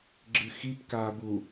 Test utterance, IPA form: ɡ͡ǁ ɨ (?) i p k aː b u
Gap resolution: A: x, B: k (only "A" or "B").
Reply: A